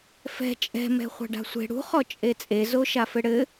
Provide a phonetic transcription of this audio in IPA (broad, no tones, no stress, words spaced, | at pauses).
fɛ̤ t͡ʃʼɛ̤mɛ̤ χʷa̤ɖa̤sʷe̤ ɽṳ χɔt͡ʃʼet͡sʼe zoʃafɘɽɘ